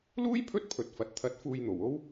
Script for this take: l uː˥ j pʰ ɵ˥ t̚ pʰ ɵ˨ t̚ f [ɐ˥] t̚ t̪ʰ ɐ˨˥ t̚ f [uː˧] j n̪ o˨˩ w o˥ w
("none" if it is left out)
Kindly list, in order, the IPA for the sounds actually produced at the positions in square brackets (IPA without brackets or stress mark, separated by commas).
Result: ɐ˨, uː˧